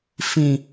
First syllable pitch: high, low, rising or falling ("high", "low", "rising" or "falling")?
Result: low